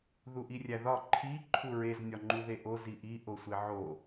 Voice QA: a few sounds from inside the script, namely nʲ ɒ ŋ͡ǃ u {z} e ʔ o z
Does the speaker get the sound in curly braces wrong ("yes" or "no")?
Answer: yes